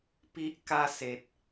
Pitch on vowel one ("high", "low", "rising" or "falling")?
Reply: high